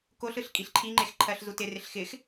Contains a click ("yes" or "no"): yes